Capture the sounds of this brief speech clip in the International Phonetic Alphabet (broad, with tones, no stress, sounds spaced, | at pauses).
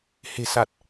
h e̤˨˩ s a˨˩ t̚